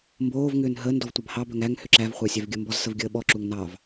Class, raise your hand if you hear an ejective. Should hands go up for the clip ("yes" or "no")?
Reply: no